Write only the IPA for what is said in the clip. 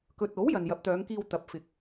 k ɵ˨ t̚ o˨˥ w j ɐ˨ n j ɐ˨˥ p̚ t̪ œː˨˧ ŋ k iː˧ w t̪ ɐ˨˥ p̚ f ɪ˨˥ k̚

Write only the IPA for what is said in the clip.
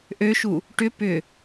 ʔ ø ʃ u | ʈ ʏ p ʏ

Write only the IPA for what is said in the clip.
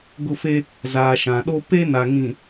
ɡ ʊ˦˨ f e˦ | z aː˨ ʃ ã˨ ɗ o˦ p e˦ n a˨ ŋ ĩ˨

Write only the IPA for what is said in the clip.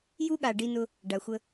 j u˦ ɠ a˨ ɖ i˧ n ʊ˧ | ɖ a˨ xʷ ə˧

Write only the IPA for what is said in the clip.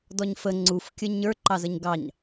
d ɔ ɲ f ə ŋ͡ǀ u f kʲ ə ɲ ə˞ ǃ ɑ z ə ɲ ɡ ɑ ɲ

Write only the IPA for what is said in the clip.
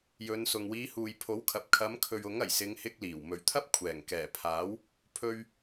j ɵ˨˧ n s ʊ˨ ŋ w iː˨˧ h uː˨ j pʰ o˨˥ w kʰ ɐ˨ p̚ kʰ ɐ˨˧ m kʰ ɵ˨ ɥ ʊ˨˥ ŋ ɐ˨˩ j s ɪ˨˧ ŋ h ɪ˧ k̚ l iː˨˩ w m ɵ˨˩ ɥ t̪ʰ ɐ˥ p̚ kʷʰ ɛː˨˩ ŋ k ɛː˨˩ pʰ aː˨˥ w | pʰ ɵ˧ ɥ

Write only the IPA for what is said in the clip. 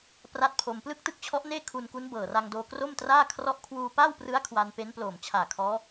p r a˥˩ t̚ pʰ o˧ m p l ɯ˥˩ k̚ t ɯ˥˩ k̚ t͡ɕʰ ɔ˦˥ ʔ n eː˥˩ kʰ u˧ n k u˦˥ n b ɤː˨˩ r a˧ ŋ d oː˧ k r o˥˩ m t r aː˥˩ kʰ r ɔ˦˥ ʔ kʰ w uː˧ p aː˥˩ w p r ɯ˦˥ a̯ kʰ w a˧ n p e˦˥ n p l oː˨˩ m t͡ɕʰ aː˨˩ kʰ ɔː˦˥

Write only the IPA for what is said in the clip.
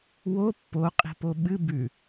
w o pː o qʼ i̤ p o ɓ ɨ b ʉ

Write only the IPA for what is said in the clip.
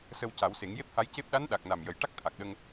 s ə˧ w c a˨˩˦ w s e˨˩˦ ŋ j e˦˥ p̚ h a˧˥ j c e˦˥ p̚ ɗ a˧˥ n ɗ a˨˩ k̚ n a˨˩ m j ə˨˩ j ʈ a˦˥ k̚ t̪ʰ a˨˩ k̚ ɗ ə˧ ŋ

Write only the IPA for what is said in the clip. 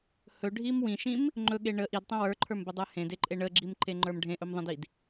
h ɵ ɖʱ i m w ĩ ʃ ĩ m | ŋ͡ǃ ɵ ɠ e ɳ ə ʔ i d tˤ ə̃ w ə˞ ǃʰ ə˞ m b ə dˤ ə˞ h ẽ d e ǃʼ e ɳ ə ɡ͡ǁ i m ǃ e ŋ͡ǃ ə˞ m ɖʱ ẽ ʔ ɵ m ðˤ ə̃ d i d

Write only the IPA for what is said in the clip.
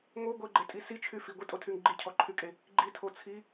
ŋ o ɡʷ e ɡ͡ǃ e tʼ i s i t͡ʃʰ y f i ɡʷ i tʼ o tʰ y ŋ ɡ͡ǃ i cʰ ɔ ǃʰ y kʼ e | ɡ͡ǃ i tʰ o t͡sʰ i

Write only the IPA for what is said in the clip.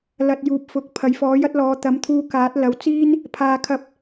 l ɐ˧ t̚ j uː˨˥ p̚ f ʊ˨˥ k̚ pʰ ɐ˨˧ j f ɔː˨˥ j ɐ˥ t̚ l ɔː˨˧ t̪ ɐ˨˥ m t̪ʰ uː˧ k aː˨˥ t̚ l ɐ˨˥ w t͡s iː˥ n | pʰ aː˨ kʰ ɐ˨˥ p̚

